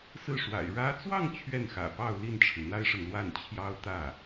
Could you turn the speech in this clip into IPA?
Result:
s ɹ̩˥˩ ʂ w a̰˨˩ ɪ̯ ɻ ä˧˥ t͡s w ɑ˥˧ ŋ t͡ɕʰ ɥ ɛ˥˩ n x ä̰˨˩ p ɑ˥˧ ʊ̯ l i˥˩ n ʈ͡ʂʰ ɻ̩˩ n̪ a˥ ɪ̯ ʂ ə˨ n l w a˥˩ n t͡ɕʰ j ɑ˥ ʊ̯ t̪ ä˥˩

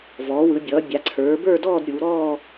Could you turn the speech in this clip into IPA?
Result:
v ɔː˩˧ w ɯ˩˧ bʲ ʌː˩˧ bʲ a˩˧ ǀʰ ə˞˩˧ b ə˞˥˧ d ɔː˥˧ d ɾʲ uː˩˧ ɾ ɔː˥˧

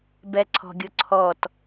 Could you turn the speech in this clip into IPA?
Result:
b ɛ ǀʰ ɔ̤ ɡʲ ʊ ǀʰ ɔ t

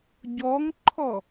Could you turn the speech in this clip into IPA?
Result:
ɟ ɔ ŋ ǃʰ ɔ

